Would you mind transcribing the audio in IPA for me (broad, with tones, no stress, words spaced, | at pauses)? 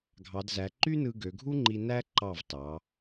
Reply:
ɡʱɑ˩˧dzæ˩˧ǃy˥nɯ˧ ɡø˩˧ɡʱu˥ŋ͡ǃi˧ næ˥ ǃɑ˧˩vtɑ˩˧